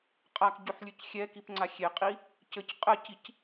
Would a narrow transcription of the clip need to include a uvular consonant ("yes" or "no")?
yes